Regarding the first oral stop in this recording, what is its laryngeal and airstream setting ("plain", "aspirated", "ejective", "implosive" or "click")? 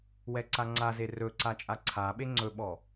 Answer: click